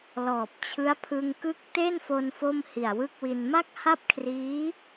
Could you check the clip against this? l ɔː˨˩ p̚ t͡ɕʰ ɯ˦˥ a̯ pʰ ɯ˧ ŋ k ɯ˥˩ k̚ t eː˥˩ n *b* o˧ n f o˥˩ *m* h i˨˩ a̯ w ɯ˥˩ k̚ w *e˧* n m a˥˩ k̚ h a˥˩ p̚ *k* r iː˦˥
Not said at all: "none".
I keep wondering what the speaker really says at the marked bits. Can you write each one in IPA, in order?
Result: f, m, i˧, kʰ

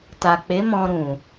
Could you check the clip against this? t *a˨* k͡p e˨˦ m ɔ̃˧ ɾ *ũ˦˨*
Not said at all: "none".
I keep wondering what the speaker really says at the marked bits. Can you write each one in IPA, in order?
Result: a˨, ũ˨

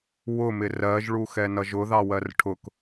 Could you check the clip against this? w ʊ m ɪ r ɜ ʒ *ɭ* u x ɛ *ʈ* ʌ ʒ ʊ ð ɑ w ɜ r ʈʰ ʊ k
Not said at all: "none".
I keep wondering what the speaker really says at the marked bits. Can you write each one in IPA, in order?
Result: ɭ, n

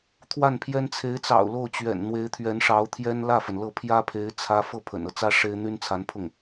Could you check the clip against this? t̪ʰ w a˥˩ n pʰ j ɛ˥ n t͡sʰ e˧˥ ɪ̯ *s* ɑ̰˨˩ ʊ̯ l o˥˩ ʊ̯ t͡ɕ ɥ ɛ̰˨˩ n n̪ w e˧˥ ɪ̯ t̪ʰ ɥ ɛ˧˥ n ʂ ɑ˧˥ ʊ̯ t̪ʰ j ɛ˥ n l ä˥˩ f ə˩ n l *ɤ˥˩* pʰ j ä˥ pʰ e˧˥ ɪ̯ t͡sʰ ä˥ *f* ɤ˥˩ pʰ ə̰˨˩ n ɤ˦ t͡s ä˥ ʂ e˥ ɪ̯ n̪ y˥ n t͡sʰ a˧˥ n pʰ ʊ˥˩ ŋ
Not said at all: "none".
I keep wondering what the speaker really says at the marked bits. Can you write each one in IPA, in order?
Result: t͡s, ɤ˥˩, f

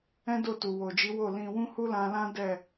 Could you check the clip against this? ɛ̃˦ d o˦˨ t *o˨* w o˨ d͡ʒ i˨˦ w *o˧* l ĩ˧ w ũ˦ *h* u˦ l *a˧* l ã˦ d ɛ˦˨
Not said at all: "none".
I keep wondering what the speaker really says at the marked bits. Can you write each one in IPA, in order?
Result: u˨, o˦˨, h, ã˧

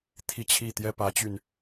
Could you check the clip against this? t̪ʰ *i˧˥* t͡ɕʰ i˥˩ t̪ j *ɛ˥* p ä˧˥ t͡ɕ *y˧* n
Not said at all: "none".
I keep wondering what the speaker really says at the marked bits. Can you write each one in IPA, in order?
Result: i˥˧, ɛ˥, y˧

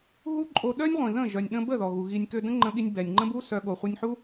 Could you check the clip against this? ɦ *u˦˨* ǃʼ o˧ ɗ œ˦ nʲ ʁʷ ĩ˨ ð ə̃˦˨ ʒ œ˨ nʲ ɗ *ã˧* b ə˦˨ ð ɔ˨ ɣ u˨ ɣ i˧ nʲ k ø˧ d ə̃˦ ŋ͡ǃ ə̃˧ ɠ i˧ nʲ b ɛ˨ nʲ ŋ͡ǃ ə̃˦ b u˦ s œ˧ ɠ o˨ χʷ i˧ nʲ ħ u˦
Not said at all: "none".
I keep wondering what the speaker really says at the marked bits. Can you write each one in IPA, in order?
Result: u˦, ə̃˧

